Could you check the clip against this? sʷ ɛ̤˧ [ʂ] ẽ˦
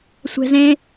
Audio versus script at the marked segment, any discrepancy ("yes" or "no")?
yes